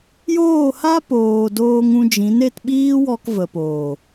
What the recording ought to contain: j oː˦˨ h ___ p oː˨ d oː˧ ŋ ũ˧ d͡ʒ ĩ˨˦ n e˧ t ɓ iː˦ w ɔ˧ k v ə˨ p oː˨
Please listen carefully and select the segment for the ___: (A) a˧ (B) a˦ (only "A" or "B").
B